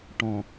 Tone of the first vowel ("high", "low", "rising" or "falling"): low